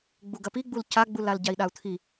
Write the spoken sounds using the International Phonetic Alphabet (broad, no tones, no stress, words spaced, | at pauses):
ɡ͡buɡɐpiɡ͡bul caɡ͡bulal ɟai̯ɗau̯t̪ʰi